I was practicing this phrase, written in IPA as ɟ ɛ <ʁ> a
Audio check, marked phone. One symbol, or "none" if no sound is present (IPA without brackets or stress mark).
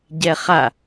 χ